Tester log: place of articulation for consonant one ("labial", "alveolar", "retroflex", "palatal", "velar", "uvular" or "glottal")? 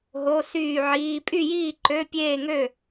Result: glottal